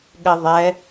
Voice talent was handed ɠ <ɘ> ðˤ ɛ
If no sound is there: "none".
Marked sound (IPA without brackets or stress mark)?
ɘ